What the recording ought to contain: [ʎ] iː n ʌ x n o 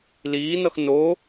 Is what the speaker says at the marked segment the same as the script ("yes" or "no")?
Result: no